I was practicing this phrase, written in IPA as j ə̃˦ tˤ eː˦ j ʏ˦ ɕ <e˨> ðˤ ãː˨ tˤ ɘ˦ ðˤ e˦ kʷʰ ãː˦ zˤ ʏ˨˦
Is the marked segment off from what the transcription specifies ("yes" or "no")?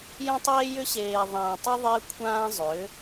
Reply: yes